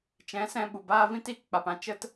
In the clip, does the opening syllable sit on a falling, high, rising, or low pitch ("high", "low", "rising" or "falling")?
rising